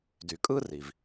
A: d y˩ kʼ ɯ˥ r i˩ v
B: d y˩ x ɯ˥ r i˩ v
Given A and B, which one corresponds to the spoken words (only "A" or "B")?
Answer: A